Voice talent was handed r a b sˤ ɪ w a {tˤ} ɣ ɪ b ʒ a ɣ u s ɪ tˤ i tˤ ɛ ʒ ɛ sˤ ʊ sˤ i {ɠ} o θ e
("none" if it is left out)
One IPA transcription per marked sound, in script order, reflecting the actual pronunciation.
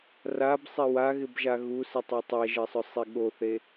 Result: none, ɠ

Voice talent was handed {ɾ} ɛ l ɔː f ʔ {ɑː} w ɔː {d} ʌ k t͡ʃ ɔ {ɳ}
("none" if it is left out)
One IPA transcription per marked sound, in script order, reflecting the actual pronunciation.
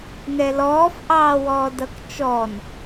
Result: n, ɑː, d, n

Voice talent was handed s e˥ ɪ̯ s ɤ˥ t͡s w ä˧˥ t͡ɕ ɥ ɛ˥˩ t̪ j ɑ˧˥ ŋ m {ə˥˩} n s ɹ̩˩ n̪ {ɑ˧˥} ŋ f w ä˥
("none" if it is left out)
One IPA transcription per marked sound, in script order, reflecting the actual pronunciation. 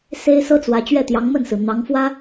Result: ə˥˩, ɑ˧˥

